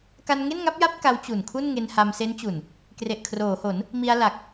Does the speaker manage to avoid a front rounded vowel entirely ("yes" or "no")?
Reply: yes